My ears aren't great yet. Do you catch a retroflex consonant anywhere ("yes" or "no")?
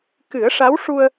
yes